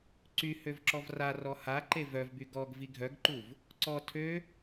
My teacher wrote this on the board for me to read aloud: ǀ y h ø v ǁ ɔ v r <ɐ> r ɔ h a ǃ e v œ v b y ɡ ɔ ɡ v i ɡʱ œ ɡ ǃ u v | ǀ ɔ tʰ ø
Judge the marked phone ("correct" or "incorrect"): incorrect